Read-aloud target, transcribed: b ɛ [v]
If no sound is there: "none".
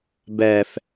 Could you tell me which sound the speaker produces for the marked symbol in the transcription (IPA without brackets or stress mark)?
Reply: f